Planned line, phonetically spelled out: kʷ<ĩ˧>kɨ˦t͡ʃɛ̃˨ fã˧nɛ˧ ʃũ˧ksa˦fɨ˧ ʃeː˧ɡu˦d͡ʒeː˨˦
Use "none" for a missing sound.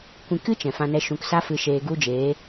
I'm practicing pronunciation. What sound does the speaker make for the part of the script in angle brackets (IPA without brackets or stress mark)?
ĩ˧